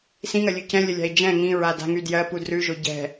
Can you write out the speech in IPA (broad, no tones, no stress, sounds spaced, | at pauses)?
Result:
s ĩ ŋ ɜ lʲ ʉ c ɛ̃ lʲ ə lʲ a̤ i̯ d͡ʒ ɛ̃ ŋ ĩ ɹ a d a̤ ŋ y d j ɜ p u d r ʉ ʒ o ɟ ɛ̤